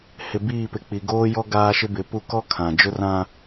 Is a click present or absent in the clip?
absent